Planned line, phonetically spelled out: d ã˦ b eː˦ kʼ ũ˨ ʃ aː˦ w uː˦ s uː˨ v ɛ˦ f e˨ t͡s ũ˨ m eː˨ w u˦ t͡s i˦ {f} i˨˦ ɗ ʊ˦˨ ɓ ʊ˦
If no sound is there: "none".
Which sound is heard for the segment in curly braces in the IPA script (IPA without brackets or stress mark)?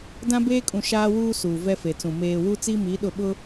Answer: m